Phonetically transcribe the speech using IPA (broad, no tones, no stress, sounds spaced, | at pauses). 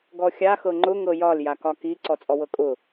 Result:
ɡ ɔ xʲ a x ɤ ŋ͡ǃ ʊ ŋ ɤ j ɒ l j a k ɒ k i ǀ ɔ t͡sʼ ɔ w ɤ kʼ ʊ